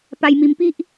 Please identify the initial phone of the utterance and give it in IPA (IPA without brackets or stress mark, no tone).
p